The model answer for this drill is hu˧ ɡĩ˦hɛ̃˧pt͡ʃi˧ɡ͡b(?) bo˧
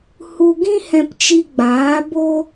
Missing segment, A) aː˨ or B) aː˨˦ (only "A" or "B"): B